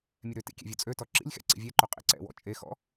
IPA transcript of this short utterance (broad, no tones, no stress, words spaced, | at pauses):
mʲɛɾøtḭ kʲɛ̰vʲot͡sʼøtɔ ǁḭlʲxɛ̰ ǀḭvʲɛǃo qʼḭǀɛ̰wɔ̰ t͡ʃʼexɔ̰